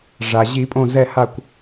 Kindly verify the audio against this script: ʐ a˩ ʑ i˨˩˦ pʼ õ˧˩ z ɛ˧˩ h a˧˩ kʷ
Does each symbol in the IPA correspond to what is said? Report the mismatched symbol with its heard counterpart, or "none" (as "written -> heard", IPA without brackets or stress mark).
none